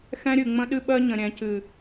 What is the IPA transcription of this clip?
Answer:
x ɛ̃˦ ɾʲ ɨ˨ ŋ͡m ə̃˦ ɗ ɨ˦ ɓ ɜ˦ ɲ ə̃˨ ɾʲ ɛ̃˨ c ɨ˨

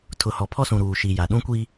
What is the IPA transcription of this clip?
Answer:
tʰ ʊ˨ h ɔ˨ pʰ ɔ˦ s ũ˨ ɾ uː˨ ʃ i˨ j a˨ ɗ ũ˦ kʷ i˦

